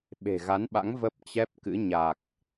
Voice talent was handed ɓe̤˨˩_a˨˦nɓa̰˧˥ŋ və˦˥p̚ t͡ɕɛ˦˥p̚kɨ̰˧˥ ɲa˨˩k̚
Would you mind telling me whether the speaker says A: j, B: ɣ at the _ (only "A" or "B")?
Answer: B